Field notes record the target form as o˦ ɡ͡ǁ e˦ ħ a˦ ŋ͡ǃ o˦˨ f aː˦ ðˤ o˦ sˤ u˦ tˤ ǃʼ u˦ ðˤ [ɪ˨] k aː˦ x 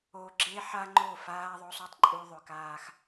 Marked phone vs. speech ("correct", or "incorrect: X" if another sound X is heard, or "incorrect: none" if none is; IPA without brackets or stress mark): incorrect: ʏ˨